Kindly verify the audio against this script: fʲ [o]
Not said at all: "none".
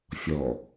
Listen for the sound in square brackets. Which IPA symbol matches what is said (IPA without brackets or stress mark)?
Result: ɔ